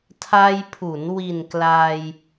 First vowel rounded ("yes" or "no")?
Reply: no